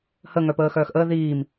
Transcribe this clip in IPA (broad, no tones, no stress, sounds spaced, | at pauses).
h ə ŋ œ p əː x œː x ʔ əː ð iː m